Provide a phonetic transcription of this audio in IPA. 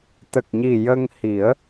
t̪ ə˨˩ k̚ ɲ i˨˩ j ə˧ ŋ h i˨˩˦ ə̯

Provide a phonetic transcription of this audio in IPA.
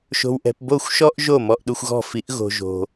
ʃ o̤˧ w ʔ ɛ̤˧ p b o˥˨ xʷ ʃ ɔ˥ ʔ ʒ o˥˨ m ɔ˧˥˧ ʔ ɗ u˧ xʷ ɣ ɔ̤˥˨ f i˧˥ ʔ ɣ o̤˧ ʒ o̤˧

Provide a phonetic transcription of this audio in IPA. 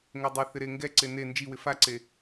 ŋ ɛ dˤ ɛ θ ɪ ɾ e ŋ ɡ ɛ ǀ e n e n d͡ʒ i w ɪ f a ǀ e

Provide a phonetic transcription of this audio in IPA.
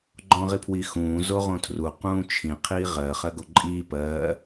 ɡ͡ǃ ɔ̃ ʁ i pʰ w i x ũː z o ʁ õ tʰ r u q ũː t͡ʃʰ ĩ qʰ iː ʁ ɜ χ ɜ ɡ o ǃʼ iː p ɜː

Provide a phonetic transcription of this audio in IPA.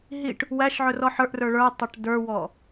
ɦ i ʈ | w æ ʃ ʕ ɵ r ɔ ħ ə˞ ʔ r ə˞ ɭ ə˞ tˤ ɵ ʈ d ə˞ w ɔ

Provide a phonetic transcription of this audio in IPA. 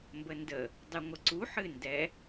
m b ə n d ə | dˤ ɨ ŋʷ ə ǀ u ħ ɨ n d ɛ

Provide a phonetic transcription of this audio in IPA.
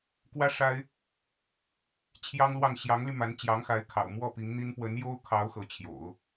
k w ä˥ ʂ a˥ ɪ̯ | t͡ɕʰ j ɑ˥ ŋ l w ɑ˥˩ ŋ ɕ j ɑ˧˥ ŋ l y˧ m a˧˥ n t͡ɕ j ɑ˧˥ ŋ x a˧˥ ɪ̯ kʰ ɑ̰˨˩ ʊ̯ m w ɔ˥˩ p i˧˥ ŋ n̪ i˥ n p w ə˧˥ n j o˥ ʊ̯ kʰ ɑ˧˥ ʊ̯ x ɤ˧˥ t͡ɕʰ j o̰˨˩˦ ʊ̯

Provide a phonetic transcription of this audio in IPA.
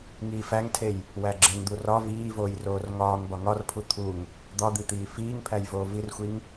ŋ iː f æ ŋ tʰ e j | w æ ɡ͡ǁ e ŋ d̪ u r ɒ v iː v oː j r oː r ŋ ɒː ŋ b ɒ ŋ ɒ r pʰ u t̪ʰ u ŋ | d̪ ɒ d̪ i t̪ iː f iː ŋ pʰ æ j v oː v i r xʷ i ŋ

